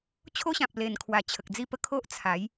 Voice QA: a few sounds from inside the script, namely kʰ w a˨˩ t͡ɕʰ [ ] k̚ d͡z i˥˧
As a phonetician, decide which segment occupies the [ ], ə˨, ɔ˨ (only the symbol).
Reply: ə˨